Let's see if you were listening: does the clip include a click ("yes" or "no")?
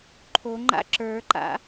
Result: yes